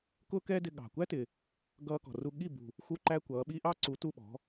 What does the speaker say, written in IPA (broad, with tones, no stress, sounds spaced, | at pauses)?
k ʊː˥ k ɛː˥ d ɪ˧ ɠ ɑ̤˨˩ kʷ æ˥ t ɪ˨˩ | ɡ ʌː˧ k ɔ̤˨˩ r u˧ ɠ i˥˩ b ṳ˨˩ | x u˥ ǃ æ˥ kʷ ʌː˨˥ ɓ i˥ ʔ ɑ˥ ǀ u˨˥ t u˥˧ ɓ ɔ̤˨˥